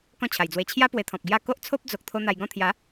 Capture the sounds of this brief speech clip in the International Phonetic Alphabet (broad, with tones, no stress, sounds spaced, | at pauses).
k ɔ̃˥˧ t͡ɕʰ a˨˩ j d͡z w e˧ t͡ɕʰ j a˧ p w e˧ t̪ʰ ɔ̃˨ p̚ ɡ j a˥˧ k o˦ ʔ t͡sʰ o˦ p̚ d͡z o˨ k̚ t̪ʰ o˧ n̪ a˧ j ɡ ɔ̃˥˧ t̪ʰ j a˨˦